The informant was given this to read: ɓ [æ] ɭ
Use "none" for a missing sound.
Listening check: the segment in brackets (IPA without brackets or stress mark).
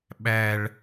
æ